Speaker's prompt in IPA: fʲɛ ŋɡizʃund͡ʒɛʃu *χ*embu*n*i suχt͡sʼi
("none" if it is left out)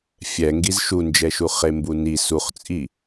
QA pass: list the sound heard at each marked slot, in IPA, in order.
χ, n

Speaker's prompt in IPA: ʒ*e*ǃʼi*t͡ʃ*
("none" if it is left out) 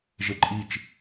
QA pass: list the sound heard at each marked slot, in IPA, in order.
e, t͡ʃ

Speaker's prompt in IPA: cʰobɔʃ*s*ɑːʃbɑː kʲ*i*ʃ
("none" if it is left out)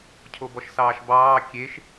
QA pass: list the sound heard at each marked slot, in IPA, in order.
s, e

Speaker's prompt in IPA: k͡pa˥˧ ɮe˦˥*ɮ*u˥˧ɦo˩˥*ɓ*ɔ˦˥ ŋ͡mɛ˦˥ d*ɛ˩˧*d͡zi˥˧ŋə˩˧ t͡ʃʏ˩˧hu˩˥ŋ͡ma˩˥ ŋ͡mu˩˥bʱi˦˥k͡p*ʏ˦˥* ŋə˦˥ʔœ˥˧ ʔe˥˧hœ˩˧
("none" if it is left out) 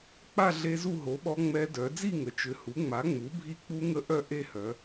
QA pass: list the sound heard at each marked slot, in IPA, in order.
z, ɓ, œ˩˧, u˦˥

